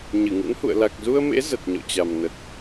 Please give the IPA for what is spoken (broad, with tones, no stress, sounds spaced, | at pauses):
ɲ ɨ˧˩ ŋ ɨ̰˧˥ n h ṵ˧˨ ə̯ l a˨˩ k̚ z u˧ ə̯ m ḛ˧˥ z ə˨˩ t̚ ɲ ɔ̰˧˨ t͡ɕ a˨˩ m n ə˨˩ t̚